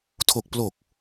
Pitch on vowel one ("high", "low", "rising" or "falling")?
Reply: low